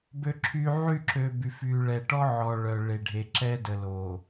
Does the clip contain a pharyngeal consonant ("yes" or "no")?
yes